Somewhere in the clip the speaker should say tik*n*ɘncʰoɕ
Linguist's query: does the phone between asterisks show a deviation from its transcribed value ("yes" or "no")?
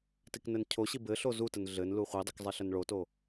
no